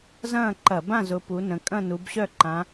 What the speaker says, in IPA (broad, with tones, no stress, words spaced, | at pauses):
zɐ̃ː˥˨ǃɐ˧˩˧bã˥˨ zʊ˨˦pu˨˦nə̃˨˦ kʼɐ̃˥˨nu˨˦bɕœ˥˨ǃã˨˦